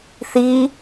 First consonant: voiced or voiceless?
voiceless